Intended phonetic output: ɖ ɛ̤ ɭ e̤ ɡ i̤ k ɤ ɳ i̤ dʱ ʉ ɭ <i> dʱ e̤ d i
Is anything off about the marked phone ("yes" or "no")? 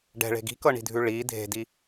no